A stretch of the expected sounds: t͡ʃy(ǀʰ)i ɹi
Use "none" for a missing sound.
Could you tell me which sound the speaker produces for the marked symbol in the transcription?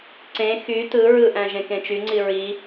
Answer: ŋ͡ǀ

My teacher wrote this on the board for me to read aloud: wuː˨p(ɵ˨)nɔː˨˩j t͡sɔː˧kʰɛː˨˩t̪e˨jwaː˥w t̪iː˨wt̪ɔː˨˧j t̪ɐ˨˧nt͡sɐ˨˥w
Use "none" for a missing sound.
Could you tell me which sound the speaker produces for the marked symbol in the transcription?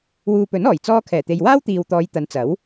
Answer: ɵ˨˥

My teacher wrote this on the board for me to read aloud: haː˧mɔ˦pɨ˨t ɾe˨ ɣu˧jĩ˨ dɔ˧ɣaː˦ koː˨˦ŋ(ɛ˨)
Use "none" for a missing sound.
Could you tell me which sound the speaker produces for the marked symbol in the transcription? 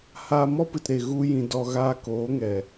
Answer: ɛ˨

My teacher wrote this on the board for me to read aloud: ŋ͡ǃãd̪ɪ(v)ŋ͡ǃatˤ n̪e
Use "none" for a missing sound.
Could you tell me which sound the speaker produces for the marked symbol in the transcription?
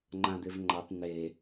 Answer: v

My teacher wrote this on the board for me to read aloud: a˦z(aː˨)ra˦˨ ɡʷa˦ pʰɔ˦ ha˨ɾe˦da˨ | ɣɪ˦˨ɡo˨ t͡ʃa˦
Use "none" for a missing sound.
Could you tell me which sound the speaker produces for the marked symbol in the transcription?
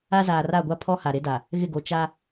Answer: aː˨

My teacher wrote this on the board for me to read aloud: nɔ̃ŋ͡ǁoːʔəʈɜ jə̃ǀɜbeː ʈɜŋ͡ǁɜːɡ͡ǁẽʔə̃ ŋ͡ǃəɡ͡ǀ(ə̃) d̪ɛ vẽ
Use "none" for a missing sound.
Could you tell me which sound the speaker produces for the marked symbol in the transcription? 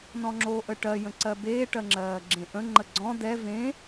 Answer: ɔ̃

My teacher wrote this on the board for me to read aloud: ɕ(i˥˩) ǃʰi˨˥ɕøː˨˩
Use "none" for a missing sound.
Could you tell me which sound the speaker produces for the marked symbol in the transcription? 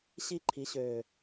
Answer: i˧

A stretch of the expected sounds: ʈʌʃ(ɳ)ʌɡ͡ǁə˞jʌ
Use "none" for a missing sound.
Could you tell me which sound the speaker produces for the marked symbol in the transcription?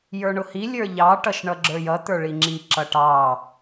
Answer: ɳ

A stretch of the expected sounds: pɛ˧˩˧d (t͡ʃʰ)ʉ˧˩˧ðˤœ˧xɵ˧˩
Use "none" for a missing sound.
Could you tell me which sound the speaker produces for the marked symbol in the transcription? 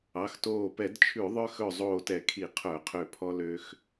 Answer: t͡ʃʰ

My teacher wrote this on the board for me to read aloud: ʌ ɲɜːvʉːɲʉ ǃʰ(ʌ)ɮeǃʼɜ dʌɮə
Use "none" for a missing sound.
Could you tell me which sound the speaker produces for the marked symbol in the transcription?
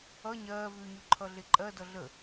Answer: ʌ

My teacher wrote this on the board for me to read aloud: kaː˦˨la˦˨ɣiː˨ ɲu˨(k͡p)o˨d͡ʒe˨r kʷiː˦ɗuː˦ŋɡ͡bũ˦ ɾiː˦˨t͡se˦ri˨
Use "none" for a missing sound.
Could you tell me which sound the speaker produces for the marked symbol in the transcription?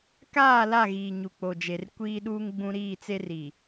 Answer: k͡p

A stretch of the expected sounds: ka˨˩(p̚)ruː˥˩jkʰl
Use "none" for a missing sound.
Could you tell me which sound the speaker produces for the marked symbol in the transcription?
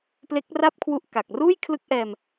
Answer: k̚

